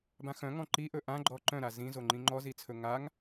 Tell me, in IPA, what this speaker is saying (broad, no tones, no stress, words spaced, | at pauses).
bãxœ̃ŋɔ̃ ǃiʔɵ ʔãɡ͡ǃɔ ǃœ̃ɾa zĩzo ŋ͡ǃĩŋ͡ǃɔzit͡sʰɵ ŋaŋ